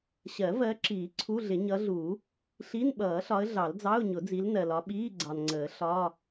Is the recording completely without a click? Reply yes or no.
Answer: no